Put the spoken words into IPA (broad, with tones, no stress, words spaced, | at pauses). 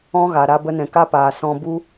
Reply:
ɔ̃˦ɣa˨ ɾa˧bə˧nɛ̃˨ ka˦paː˨ sɔ̃˧ bu˦